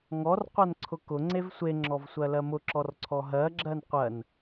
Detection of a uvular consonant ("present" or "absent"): present